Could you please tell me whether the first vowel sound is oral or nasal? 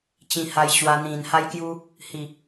nasal